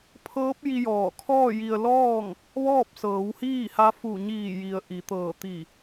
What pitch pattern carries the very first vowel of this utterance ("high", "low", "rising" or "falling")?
rising